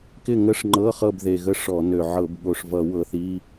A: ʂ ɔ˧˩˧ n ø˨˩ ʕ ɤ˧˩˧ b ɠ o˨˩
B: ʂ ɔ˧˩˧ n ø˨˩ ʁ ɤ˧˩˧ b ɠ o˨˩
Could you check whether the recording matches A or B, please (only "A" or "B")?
A